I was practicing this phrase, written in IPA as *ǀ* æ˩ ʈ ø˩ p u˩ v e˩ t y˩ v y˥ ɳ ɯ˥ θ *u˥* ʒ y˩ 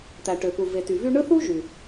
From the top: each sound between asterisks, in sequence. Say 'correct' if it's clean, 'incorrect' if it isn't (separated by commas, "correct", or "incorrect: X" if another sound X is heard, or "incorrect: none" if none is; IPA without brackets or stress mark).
incorrect: t̪, correct